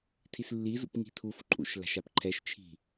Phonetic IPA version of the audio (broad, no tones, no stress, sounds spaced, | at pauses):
tʰ i s lː i z ṵ p ŋ i̤ tʰ u f ǃʼ ṵ ʃ l a̤ ʃ a p ǃʰ ɛ ʃ t͡ʃʰ i̤